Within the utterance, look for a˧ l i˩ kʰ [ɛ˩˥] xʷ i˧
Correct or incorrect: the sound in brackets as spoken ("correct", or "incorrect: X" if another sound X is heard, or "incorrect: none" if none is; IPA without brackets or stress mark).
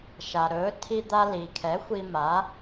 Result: correct